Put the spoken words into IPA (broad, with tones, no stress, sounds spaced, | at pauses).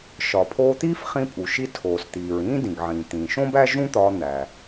ʃ ɒ˩ pʰ oː˧ t̪ iː˥ f χ ĩ˧ pʼ u˩ ʃ i˧ tʰ oː˩ s t̪ iː˩ ɹ ĩː˥ d ĩ˩ ɡ ʕ ĩː˩ t̪ ĩː˩ ʃ õ˥ b æ˥ ʒ ũ˥ t̪ ɒː˧ n̪ æ˩